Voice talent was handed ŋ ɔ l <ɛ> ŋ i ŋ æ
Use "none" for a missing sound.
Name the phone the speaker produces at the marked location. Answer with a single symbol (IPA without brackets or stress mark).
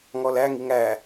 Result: æ